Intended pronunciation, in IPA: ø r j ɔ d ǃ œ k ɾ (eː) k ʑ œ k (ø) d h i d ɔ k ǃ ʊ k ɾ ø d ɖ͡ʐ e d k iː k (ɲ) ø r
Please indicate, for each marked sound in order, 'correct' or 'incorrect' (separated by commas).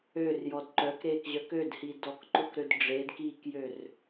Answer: correct, correct, incorrect